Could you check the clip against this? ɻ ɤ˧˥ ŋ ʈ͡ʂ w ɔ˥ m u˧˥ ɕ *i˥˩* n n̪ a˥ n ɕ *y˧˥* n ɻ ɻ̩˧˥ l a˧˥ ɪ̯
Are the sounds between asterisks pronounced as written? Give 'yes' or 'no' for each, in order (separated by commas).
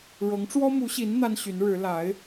no, yes